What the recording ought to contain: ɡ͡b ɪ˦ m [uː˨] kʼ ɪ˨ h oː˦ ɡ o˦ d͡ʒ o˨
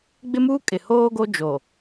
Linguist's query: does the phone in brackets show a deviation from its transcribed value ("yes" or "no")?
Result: yes